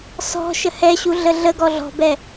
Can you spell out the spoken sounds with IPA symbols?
s ɔ̤ ʃ ə h ɛ ɕ u ɮ ə ɮ ə ɡ ɔ ɮ ɔ̤ b ɛ

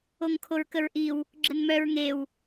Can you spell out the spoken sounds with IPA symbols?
o ŋ kʰ o ɹ k ə ɹ ʔ i w | ɡ͡ǁ ə n m œ ɹ ŋ e w

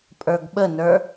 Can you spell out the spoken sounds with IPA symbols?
pʼ ə˞ ɡ ɓ ə n ə˞

